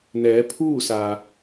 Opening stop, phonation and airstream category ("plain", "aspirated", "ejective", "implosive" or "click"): aspirated